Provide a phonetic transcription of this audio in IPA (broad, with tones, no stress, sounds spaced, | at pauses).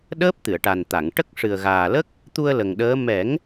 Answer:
ɗ əː˦˥ p̚ t̪ ɨ˨˩˨ ə̯ ʈ a˨˩ n t̪ a˨˩˨ ŋ ʈ ə˦˥ k̚ ʂ ɨ˨˩ ə̯ ɣ aː˨˩ l ə˦˥ k̚ | t̪ u˧ ə̯ l ə˨˩ ŋ ɗ əː˧˥ m ɛ˨˩˦ ŋ